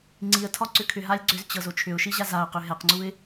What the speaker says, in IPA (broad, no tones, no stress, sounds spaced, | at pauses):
ŋ͡ǀ i ə̯ tʰ ɒ ǀ ʏ kʰ ʏ ɦ a lʲ ɡ͡ǀ ʏ z t͡ɕ ɤ z o t͡ʃʰ ʏ ʊ̯ ʃ i ʑ a z a ʊ̯ q ʏ ɦ ɛ q ŋ͡ǀ u ɪ̯